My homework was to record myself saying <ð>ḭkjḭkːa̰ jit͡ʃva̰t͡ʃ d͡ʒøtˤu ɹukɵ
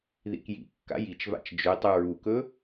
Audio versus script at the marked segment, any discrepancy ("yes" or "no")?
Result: no